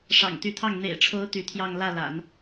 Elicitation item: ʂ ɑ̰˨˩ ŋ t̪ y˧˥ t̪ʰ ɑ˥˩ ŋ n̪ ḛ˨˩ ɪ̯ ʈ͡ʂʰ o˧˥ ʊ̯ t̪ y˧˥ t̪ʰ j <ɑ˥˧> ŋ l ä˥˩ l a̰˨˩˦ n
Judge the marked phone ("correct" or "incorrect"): correct